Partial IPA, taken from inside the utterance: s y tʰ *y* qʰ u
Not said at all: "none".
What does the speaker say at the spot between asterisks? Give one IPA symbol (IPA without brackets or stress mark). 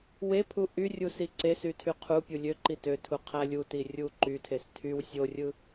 y